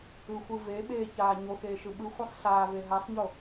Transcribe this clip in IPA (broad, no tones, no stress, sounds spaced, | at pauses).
ɯ xʷ ɯ v e ɓ eː ç aː ɲ o x eː ʃ ɯ ɓ ɯ xʷ ɜ sˤ ɬ aː v e ɦ a sˤ ɲ o